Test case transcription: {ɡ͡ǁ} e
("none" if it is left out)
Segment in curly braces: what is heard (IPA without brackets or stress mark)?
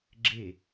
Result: ɡ͡ǁ